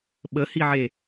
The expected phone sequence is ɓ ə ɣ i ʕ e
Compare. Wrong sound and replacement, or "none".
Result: ɣ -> h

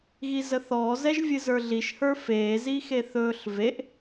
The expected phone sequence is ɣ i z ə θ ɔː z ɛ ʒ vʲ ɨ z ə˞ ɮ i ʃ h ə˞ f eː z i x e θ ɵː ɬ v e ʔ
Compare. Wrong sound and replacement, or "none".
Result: none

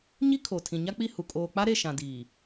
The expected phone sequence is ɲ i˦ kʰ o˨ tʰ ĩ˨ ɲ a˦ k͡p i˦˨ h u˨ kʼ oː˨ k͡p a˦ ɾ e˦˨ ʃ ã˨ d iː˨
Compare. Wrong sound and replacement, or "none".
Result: none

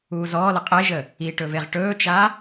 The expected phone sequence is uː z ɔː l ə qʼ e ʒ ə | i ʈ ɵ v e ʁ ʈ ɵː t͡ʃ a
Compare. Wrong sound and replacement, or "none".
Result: none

